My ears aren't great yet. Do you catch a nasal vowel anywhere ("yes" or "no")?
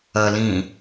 yes